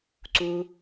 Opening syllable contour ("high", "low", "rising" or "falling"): low